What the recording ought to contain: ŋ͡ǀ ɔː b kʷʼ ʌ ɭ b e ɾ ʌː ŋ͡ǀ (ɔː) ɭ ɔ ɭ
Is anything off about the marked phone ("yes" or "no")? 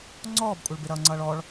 yes